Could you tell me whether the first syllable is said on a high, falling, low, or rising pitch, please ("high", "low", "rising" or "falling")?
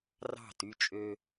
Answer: falling